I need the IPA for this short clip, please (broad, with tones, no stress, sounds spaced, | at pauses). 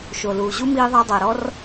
ʃ o˨ l uː˨ ʑ u˦ m iː˧ ðˤ a˧ dˤ a˨ ɾ ɔ˦ r